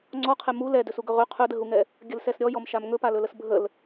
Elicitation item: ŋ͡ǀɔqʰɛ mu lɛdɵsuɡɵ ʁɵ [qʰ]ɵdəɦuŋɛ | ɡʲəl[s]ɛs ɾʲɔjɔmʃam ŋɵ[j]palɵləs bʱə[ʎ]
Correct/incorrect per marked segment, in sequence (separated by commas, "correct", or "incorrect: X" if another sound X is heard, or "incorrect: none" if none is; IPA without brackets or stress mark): correct, correct, incorrect: none, incorrect: l